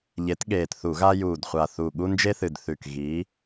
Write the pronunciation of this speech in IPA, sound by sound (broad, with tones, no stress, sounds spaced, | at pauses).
ʎ e˨˦ t ɠ eː˨˩ t θ u˧˩˧ ɣ a˦ j uː˨˩ d χʷ a˨˩ θ u˨˩ ɠ u˦ n d͡ʒ e˦ θ ɨ˨˩ d θ ʉ˨˩ k ɣ iː˨˦